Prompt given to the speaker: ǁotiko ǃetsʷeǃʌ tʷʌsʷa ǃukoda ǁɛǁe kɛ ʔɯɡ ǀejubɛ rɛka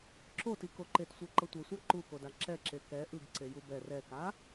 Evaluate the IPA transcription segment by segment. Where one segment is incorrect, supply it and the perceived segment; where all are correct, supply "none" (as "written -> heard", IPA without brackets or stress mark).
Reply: none